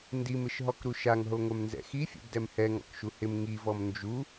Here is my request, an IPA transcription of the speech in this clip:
n d i m ɪ ʃ ɦ ɔ k ɾ u ʃ a ŋ ɦ o ŋʷ ɛ m n z ɛ̰ x i fʲ o̰ b d ɛ m h ɛ ŋ ɔ̰ k ʃ u h ɪ m ŋ i v ɔ m n d͡ʒ u

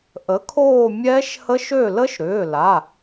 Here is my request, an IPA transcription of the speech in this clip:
ʔ ə˩˥ kʰ oː˦˨ mʲ ɛː˦˥ ʃ h ə˦˥ ʃ ø˦˨ l ə˦˥ ʃ ɾ ʏː˩˧˩ l a˩˧˩

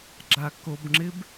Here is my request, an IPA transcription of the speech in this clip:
ɡ͡ǁ a k o b ŋ͡ǁ ɪ b

